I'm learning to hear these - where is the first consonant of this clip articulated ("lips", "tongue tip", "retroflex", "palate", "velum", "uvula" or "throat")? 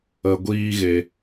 velum